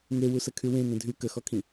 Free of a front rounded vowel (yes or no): no